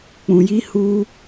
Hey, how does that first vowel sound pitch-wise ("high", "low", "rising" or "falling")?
low